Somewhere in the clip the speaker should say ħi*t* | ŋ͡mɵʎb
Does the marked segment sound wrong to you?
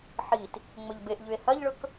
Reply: no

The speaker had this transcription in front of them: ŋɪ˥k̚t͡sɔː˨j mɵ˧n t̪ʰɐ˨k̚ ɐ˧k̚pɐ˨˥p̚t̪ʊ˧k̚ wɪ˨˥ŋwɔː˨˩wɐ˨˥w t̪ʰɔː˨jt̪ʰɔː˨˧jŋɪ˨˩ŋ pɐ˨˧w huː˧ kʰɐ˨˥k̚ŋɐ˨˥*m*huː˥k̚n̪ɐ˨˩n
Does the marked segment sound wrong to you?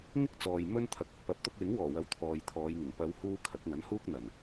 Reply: yes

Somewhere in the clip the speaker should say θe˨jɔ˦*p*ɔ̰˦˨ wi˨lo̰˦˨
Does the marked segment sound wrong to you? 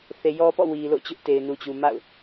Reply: no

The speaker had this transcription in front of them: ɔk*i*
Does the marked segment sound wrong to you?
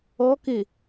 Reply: yes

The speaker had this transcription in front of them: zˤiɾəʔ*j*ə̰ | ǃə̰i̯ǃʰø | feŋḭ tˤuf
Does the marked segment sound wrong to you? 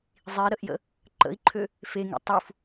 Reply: no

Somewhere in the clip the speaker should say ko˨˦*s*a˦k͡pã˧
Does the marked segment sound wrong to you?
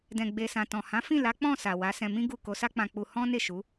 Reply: no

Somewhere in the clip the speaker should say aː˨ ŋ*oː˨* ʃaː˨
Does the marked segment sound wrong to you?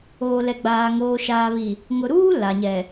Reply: no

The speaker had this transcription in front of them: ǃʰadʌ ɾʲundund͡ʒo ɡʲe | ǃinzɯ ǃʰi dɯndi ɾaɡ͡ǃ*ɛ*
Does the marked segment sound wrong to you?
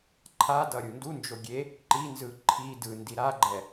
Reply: no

